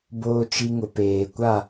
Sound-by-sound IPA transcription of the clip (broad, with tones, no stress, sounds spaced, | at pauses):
b oː˨ t͡ʃ i˨ ŋ ʊ˨ p eː˨ kʷ a˦˨